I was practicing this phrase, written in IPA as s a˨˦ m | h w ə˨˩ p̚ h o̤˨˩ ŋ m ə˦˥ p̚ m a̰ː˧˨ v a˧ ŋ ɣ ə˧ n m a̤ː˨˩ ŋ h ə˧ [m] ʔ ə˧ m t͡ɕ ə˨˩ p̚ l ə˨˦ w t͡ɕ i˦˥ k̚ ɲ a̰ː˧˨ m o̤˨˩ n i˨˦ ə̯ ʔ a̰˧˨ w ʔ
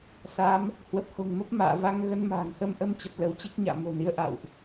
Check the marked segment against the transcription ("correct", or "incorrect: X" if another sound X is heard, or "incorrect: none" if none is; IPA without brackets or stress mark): correct